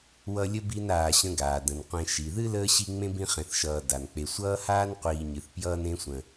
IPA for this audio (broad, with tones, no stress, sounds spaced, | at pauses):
w ʌ˦ lʲ ə˥ b i˦ n aː˨ ɕ ə̃˦ ɡ aː˩ d ə̃˩ n qʷ ẽ˨ ʃ i˩ ð ɨ˥ l əː˥ ɕ i˦ ŋ͡m ẽ˥ b ĩ˦ χ ẽ˨ θ ʃ ʌː˨ d a˩ n k͡p e˨ sʷ ʌː˥ h aː˥ n qʷ iː˨ ɲ ɨ˩ θ p j ʌː˦ n ẽ˦ sʷ ə̃˨